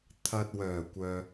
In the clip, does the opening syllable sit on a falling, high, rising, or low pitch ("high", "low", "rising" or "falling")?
low